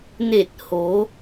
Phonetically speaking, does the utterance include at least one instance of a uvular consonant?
no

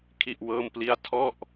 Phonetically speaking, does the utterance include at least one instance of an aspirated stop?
yes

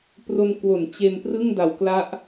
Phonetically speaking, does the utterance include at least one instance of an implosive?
no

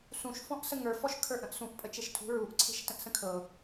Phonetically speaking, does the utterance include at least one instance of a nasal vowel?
yes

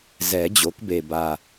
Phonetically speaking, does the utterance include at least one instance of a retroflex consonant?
no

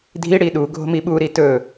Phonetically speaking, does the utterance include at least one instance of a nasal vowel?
no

